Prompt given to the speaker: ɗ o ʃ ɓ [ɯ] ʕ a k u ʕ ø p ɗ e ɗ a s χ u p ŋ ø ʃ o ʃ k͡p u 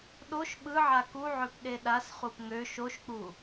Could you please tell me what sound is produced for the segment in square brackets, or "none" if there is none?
ɯ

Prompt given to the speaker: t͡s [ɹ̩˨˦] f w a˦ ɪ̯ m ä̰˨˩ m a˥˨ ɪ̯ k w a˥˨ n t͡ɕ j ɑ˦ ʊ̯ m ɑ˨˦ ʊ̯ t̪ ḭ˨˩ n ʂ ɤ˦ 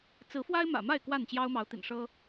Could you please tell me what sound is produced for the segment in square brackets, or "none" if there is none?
ɹ̩˨˦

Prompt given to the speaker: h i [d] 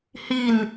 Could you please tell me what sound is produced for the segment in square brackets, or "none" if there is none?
n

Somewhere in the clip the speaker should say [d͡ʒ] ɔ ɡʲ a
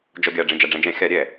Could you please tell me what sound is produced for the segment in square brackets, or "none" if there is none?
d͡ʒ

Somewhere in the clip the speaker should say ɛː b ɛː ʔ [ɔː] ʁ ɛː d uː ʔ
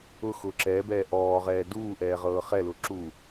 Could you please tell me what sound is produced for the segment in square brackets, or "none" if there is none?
ɔː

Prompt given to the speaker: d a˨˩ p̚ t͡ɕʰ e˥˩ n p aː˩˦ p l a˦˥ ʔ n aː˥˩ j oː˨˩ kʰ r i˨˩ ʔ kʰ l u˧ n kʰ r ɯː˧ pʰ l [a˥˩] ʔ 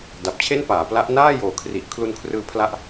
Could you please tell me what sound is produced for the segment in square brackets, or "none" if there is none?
a˦˥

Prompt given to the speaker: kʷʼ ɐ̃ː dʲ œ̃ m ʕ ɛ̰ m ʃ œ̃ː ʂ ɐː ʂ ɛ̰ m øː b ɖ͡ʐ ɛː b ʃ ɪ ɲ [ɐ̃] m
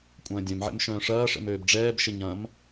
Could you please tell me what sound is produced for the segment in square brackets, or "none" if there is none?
ɐ̃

